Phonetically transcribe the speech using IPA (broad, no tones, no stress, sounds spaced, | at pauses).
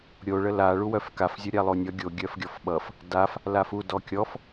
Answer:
ɾʲ o ɭ ə l a ɭ u w œ f k a f zʲ o ɾʲ a lˠ o nʲ ʌ ɡʲ o ɡʲ œ f ɡʲ ɔ f ɓ ʌ f | d a f | l a f u d ɔ kʲ ɔ f